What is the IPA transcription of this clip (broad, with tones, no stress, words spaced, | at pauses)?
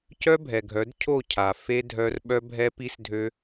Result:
cœ˦bʱɛ˨ɡʱœ˨˦d cʰo˦˨cʰa˨ fe˦ dʱœ˦r ɓœ˦bʱɛ˦pi˦s dʱø˦